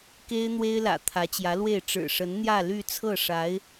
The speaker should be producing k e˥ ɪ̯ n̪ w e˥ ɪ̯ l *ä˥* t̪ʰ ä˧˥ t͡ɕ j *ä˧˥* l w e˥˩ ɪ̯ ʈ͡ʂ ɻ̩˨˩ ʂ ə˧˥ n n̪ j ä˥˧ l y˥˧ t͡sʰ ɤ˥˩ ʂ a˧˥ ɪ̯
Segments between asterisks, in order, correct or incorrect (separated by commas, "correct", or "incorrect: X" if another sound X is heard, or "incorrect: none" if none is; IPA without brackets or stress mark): incorrect: ä̰˨˩, correct